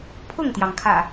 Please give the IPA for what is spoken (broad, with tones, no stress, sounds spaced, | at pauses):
pʰ ʊ˥˨ ŋ t̪ j ɑ˩ ŋ kʰ ä̰˨˩